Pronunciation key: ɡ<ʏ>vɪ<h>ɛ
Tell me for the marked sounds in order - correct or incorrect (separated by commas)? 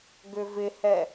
correct, correct